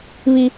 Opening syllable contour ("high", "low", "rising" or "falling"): low